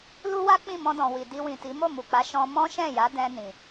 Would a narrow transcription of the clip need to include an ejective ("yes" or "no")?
no